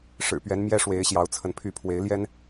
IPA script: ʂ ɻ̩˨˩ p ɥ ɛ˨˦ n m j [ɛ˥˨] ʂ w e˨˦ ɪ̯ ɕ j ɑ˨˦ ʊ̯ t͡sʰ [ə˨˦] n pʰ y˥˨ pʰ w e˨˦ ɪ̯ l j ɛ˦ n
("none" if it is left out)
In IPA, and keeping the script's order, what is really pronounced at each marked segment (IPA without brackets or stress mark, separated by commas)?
ɛ˦, ə˨˦